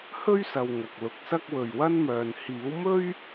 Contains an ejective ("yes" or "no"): no